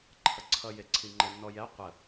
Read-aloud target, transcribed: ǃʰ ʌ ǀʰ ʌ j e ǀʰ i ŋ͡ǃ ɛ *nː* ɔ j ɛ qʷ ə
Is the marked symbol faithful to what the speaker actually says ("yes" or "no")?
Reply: yes